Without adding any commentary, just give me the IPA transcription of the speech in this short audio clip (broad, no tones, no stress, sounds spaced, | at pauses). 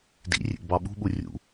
d ḭ rʲ ḛ ɡ b ɑ ɓ ṳ ɓ u rʲ ṵ